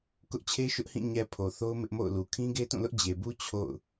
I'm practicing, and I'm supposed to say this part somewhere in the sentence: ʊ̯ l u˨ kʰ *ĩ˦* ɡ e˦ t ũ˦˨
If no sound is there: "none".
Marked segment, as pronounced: ĩ˦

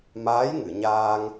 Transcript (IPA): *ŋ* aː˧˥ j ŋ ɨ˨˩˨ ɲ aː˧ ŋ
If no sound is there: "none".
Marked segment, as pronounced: m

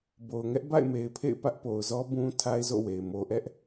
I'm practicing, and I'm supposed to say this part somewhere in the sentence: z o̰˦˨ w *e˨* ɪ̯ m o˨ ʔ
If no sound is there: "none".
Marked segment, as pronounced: e˨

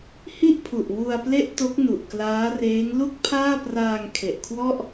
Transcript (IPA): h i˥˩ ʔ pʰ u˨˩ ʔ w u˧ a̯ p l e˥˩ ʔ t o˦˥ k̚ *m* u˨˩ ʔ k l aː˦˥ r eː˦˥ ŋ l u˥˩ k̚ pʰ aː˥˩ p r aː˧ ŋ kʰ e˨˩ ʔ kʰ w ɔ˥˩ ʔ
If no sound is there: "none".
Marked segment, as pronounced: n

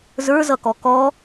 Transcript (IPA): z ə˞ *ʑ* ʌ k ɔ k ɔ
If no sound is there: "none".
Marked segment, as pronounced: z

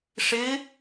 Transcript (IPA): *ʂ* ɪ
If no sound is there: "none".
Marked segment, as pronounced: ʂ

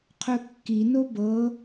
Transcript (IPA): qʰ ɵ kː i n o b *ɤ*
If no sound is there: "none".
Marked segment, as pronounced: ɤ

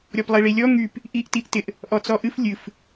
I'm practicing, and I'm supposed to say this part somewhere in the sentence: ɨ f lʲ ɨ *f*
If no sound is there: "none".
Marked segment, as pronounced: f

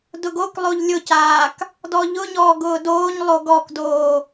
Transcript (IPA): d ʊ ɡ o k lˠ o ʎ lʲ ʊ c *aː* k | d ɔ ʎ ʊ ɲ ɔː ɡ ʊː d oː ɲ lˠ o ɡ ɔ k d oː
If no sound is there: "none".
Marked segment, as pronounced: aː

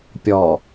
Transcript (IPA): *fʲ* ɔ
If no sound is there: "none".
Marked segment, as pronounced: pʲ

